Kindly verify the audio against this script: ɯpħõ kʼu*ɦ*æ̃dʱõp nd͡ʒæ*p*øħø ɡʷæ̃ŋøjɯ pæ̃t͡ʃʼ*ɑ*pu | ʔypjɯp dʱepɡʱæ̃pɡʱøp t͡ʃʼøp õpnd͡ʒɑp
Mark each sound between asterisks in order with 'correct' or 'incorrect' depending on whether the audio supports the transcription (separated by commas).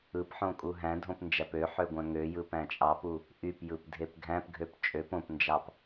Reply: correct, correct, correct